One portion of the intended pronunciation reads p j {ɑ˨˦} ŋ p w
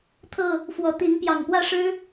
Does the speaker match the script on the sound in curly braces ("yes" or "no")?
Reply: no